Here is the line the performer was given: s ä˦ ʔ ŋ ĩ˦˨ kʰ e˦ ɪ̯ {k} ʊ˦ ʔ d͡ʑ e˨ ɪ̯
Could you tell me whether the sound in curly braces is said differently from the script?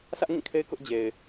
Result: no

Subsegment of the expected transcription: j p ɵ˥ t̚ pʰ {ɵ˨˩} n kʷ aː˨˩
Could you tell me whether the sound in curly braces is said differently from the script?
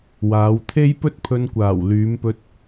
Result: yes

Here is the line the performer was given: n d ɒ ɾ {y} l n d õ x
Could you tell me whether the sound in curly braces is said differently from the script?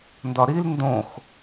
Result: yes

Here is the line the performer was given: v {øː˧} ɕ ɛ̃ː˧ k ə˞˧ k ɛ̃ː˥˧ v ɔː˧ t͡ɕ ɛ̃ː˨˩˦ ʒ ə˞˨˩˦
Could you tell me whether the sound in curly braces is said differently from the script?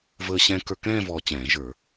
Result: yes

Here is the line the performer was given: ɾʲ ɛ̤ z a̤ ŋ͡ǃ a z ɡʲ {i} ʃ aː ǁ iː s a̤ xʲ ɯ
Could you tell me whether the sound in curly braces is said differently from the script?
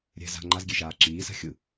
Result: yes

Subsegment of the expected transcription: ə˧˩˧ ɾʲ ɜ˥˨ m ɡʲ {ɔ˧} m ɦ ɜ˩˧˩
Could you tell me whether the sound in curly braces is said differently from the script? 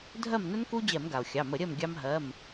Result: yes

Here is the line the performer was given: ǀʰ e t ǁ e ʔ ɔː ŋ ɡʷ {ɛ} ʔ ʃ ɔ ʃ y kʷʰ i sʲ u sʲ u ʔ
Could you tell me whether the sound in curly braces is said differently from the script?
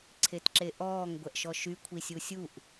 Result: no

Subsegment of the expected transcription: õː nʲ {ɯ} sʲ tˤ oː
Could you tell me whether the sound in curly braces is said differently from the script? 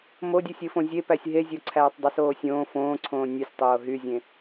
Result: no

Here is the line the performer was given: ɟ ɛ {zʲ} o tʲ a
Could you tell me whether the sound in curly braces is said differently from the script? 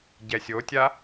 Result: yes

